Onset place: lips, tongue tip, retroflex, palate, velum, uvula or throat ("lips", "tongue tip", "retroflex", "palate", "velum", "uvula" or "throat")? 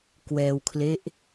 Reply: velum